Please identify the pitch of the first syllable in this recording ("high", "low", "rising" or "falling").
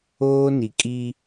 high